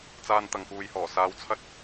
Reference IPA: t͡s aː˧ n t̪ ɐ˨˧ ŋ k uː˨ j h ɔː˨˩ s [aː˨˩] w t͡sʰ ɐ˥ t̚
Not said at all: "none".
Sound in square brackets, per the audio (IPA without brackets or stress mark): aː˨˧